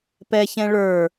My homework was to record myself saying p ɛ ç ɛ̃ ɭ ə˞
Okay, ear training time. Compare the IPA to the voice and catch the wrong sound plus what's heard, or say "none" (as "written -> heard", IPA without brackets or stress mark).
none